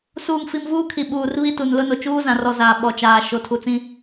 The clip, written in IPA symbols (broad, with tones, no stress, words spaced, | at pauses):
suː˨ŋfi˨m vuː˦kʰi˨ɓuː˨rβi˦ tu˨nlʊ˦no˨ t͡ʃuː˦zã˨rɔ˨ zaː˨ ɓɔ˨t͡ʃaː˨ ʃo˨˦tʰu˨t͡sĩ˦